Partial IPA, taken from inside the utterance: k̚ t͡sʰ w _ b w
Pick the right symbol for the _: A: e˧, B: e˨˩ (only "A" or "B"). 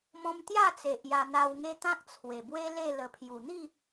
B